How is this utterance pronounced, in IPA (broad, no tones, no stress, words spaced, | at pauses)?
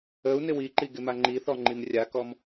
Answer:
əu̯ nɪwiǃi ɡɪmaŋ͡ǃiθɔ ŋ͡ǃimrʲakɔm